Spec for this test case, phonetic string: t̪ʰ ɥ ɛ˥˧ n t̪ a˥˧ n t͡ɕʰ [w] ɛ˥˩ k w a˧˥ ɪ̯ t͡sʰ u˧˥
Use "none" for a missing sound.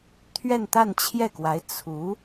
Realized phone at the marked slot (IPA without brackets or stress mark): j